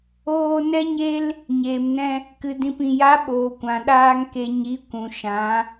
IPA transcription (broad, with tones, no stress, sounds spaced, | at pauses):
oː˧ n ɛ˦ ɲ e˦ l | ɲ eː˨ m n ɛ̃˧ | k ɨ˨ d ĩ˨ p ĩ˨ j a˨˦ ɓ oː˨ kʷ ã˨ ɗ aː˧ ŋ k e˨ ɲ i˨˦ kʷ ũ˨ ʃ ã˨˦